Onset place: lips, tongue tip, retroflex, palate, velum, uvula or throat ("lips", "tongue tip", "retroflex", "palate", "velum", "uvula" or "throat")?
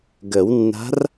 velum